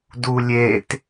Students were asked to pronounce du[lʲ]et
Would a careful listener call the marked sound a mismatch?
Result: no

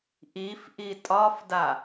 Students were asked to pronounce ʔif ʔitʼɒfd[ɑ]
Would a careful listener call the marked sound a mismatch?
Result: yes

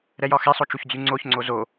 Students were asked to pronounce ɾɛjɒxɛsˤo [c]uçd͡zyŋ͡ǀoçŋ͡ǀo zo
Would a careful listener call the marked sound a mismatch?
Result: yes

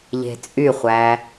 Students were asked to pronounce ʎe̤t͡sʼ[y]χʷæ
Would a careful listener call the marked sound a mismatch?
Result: no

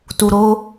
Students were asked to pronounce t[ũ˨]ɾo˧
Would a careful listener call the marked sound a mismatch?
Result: yes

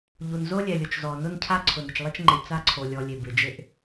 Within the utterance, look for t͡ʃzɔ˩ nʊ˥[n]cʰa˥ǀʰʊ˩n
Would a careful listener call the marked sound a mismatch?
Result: no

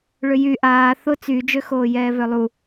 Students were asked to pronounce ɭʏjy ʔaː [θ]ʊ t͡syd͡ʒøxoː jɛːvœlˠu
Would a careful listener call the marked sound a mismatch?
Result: no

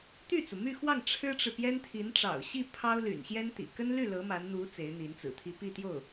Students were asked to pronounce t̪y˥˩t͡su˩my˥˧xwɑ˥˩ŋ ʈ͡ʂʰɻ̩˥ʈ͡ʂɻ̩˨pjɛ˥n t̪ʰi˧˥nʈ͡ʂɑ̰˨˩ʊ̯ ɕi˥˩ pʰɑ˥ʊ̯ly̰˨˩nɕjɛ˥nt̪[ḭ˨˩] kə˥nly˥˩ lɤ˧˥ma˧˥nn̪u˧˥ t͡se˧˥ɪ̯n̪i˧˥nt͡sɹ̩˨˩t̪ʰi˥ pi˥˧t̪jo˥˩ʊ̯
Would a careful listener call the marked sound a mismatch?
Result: no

